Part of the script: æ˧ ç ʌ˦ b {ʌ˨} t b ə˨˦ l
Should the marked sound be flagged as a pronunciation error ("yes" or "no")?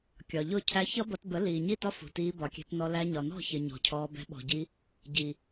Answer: yes